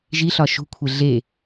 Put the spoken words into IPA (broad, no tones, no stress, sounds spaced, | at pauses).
ʒ i ɬ ɒ ʃ ṳ kʷʰ e ɮ e